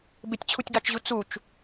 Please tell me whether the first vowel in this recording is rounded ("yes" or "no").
no